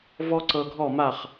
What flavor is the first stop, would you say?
click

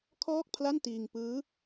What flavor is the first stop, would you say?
aspirated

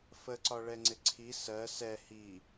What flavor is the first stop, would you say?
click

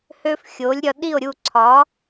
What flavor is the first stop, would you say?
implosive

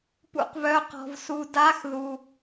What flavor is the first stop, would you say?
plain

